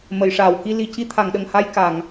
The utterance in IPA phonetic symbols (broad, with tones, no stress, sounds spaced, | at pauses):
m ə˨˩˨ j ʂ aː˨˩˨ w k i˧ l i˨˩ c i˧˥ t̪ʰ a˨˩˨ ŋ ɗ ə˨˩˨ ŋ h a˧ j k a˨˩˨ ŋ